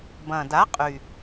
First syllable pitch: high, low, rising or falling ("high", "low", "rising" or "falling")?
low